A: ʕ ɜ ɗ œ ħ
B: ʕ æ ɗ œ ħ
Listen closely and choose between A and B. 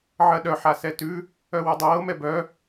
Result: A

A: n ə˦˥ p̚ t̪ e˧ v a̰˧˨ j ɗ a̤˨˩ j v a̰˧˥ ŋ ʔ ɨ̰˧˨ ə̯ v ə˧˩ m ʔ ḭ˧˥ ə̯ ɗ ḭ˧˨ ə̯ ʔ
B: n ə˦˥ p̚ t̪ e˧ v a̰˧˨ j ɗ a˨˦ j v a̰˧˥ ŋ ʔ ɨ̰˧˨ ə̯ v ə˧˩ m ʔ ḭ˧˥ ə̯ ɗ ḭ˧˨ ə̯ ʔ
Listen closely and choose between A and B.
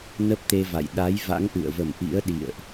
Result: B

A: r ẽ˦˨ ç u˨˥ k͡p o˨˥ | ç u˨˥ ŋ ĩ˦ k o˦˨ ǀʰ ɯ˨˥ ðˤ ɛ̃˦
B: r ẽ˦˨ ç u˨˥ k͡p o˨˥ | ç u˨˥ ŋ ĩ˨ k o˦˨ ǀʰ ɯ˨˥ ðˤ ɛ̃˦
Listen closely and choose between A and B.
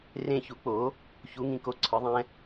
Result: B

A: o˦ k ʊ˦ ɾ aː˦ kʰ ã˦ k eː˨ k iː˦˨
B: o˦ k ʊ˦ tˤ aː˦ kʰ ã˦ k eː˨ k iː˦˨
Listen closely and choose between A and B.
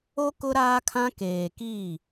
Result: A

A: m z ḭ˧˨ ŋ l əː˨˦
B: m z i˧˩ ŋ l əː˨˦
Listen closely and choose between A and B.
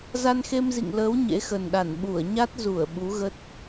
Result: A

